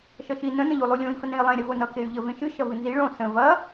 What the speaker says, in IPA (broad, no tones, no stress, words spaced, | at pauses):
ʃʌʃi nə̃ nə̃ʎulˠulʲõi̯ fənẽi̯lˠẽ ɾʲɐvonʌ key̯ʎə vẽʃɨ ʃɐvɨnzi ɭõ sə̃ vɐ